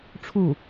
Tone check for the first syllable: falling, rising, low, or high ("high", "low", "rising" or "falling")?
falling